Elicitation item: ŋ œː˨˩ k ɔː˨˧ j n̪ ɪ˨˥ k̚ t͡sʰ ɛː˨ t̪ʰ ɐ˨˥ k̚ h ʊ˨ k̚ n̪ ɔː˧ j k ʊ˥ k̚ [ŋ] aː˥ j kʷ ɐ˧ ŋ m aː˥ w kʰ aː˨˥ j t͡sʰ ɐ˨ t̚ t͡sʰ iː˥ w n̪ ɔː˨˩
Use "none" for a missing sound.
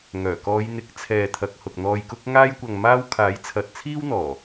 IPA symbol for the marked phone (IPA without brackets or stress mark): ŋ